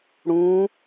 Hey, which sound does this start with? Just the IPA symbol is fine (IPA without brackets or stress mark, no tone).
ɽ